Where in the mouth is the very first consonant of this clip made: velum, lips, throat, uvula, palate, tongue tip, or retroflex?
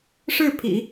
retroflex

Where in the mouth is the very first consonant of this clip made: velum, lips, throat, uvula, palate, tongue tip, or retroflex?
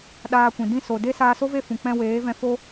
tongue tip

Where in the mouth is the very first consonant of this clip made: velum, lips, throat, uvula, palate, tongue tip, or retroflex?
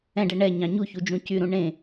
retroflex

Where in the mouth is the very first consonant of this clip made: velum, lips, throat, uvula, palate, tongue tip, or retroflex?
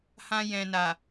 throat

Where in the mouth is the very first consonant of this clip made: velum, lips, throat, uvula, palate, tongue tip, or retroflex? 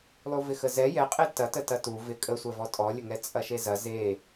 tongue tip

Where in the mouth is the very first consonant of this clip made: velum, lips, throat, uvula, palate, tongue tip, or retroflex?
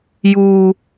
palate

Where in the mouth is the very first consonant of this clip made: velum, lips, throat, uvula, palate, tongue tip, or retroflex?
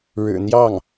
retroflex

